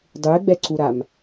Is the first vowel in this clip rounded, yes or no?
yes